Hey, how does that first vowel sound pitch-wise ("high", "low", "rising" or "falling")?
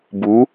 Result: rising